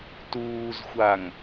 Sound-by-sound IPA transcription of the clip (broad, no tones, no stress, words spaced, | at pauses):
tuːzxʷaŋ